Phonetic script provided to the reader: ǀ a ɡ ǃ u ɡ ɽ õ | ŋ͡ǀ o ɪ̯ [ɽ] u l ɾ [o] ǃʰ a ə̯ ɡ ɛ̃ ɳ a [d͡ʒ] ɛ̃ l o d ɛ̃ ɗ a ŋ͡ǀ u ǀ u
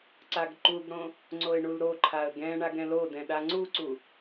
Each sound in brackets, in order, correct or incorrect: incorrect: ɳ, correct, incorrect: ɡ

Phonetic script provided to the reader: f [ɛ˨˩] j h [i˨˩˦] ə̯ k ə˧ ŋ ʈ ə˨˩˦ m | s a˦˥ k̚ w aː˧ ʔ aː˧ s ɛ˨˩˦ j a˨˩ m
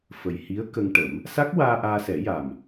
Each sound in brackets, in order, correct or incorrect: incorrect: ə˨˩, incorrect: i˧˥

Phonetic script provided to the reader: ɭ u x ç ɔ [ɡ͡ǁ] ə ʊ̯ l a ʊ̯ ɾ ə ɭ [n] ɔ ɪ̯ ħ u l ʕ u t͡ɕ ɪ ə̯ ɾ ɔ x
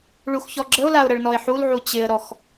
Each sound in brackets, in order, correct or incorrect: correct, correct

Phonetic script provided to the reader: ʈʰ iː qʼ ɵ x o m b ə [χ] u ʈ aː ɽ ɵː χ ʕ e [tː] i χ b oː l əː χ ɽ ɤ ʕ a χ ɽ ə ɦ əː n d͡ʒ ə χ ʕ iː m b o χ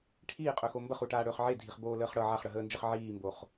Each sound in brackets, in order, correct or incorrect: correct, incorrect: dʱ

